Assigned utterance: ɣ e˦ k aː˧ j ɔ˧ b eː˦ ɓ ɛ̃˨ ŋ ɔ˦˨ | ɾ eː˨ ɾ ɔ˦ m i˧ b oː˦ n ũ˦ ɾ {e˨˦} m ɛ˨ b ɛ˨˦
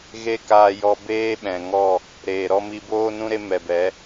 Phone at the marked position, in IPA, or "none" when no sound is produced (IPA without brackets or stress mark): e˦